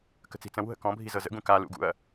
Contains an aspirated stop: no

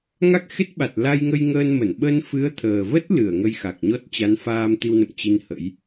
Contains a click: no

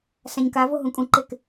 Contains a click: yes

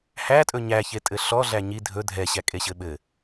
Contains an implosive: yes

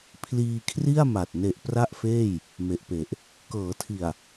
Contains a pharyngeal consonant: no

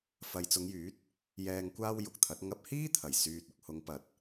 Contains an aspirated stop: yes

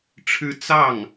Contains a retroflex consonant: yes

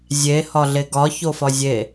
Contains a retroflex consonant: no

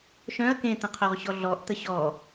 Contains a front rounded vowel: yes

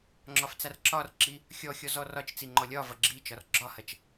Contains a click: yes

